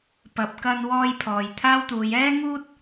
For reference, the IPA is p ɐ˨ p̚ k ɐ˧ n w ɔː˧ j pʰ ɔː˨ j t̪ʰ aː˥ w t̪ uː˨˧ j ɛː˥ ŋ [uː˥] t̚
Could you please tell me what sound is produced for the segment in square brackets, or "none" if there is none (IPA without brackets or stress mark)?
uː˥